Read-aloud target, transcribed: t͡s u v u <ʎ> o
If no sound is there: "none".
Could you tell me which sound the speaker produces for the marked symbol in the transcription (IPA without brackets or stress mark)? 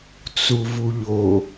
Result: ʎ